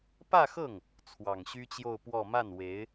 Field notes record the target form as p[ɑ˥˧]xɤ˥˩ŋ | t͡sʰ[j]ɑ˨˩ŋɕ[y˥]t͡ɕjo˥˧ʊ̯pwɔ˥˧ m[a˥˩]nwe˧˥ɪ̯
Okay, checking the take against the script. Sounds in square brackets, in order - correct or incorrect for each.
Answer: incorrect: ä˥˧, incorrect: w, correct, correct

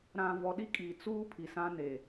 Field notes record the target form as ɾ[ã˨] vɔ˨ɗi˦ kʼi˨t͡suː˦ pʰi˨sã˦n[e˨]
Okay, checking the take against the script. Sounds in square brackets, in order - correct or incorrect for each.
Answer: correct, correct

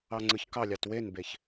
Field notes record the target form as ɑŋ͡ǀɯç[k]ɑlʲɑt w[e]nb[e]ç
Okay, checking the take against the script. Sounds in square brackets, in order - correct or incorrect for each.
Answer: correct, correct, correct

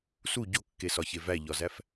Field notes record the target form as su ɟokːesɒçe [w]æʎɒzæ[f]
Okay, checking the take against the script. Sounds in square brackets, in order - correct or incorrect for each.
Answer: incorrect: v, correct

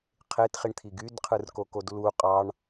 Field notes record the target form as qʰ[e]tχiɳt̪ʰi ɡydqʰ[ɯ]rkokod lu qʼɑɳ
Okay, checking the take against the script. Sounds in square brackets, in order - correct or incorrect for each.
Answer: correct, correct

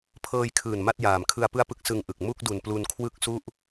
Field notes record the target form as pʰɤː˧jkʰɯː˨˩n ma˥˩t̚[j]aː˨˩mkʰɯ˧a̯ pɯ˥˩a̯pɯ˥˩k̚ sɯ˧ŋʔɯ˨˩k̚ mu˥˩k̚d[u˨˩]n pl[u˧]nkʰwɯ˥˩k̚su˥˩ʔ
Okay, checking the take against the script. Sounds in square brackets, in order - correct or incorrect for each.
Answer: correct, correct, correct

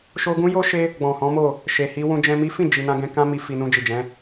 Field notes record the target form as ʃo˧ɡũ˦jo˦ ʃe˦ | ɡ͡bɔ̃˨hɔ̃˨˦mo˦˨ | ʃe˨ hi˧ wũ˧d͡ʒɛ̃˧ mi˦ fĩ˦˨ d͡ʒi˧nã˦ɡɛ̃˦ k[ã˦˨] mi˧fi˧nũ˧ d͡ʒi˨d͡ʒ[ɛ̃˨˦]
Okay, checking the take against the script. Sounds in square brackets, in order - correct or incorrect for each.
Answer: incorrect: ã˦, correct

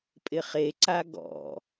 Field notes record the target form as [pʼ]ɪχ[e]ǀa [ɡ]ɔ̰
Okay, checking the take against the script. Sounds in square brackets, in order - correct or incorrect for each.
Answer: correct, correct, correct

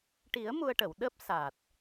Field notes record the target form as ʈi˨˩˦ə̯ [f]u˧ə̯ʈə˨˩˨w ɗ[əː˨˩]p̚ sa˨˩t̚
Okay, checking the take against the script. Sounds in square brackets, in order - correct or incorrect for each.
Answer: incorrect: m, incorrect: əː˦˥

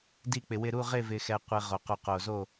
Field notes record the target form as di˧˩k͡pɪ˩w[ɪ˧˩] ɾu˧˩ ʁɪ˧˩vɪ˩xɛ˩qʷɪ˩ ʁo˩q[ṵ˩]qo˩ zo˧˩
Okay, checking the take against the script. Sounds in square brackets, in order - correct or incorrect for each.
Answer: correct, incorrect: u˩

